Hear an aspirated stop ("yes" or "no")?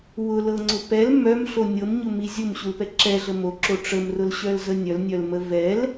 no